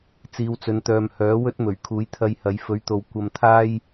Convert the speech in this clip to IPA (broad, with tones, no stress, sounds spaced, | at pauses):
t͡s iː˨˧ w t͡s ɵ˨˧ n t̪ œː˨ m h œː˨˥ w ɵ˥ t̚ m ɵ˨˩ ɥ kʰ uː˨˥ j t̪ʰ ɐ˧ j h ɐ˨˧ j f ɵ˨˥ ɥ t̪ o˨ w kʷ ɐ˧ m t̪ʰ aː˥ j